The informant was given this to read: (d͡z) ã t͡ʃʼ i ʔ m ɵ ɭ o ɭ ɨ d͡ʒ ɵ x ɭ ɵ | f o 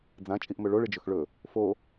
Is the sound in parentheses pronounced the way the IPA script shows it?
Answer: yes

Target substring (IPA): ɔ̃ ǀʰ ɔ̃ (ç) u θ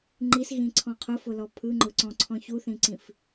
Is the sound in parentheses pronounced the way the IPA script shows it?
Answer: yes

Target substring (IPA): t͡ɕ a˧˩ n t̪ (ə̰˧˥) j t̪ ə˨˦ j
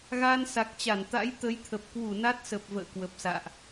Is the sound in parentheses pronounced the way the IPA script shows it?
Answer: no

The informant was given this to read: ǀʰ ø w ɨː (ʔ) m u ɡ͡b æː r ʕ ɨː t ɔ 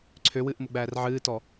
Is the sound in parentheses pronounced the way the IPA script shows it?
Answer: yes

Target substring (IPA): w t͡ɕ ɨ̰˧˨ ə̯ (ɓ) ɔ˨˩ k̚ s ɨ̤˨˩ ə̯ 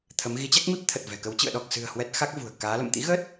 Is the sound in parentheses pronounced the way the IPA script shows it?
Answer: no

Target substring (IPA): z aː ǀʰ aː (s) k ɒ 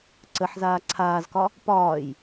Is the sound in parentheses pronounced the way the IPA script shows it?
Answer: no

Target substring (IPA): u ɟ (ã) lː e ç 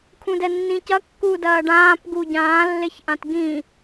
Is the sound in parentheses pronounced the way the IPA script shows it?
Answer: no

